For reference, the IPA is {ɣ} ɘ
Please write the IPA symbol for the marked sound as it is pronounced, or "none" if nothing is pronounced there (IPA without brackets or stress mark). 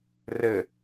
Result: r